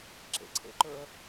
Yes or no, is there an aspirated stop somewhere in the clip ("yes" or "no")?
yes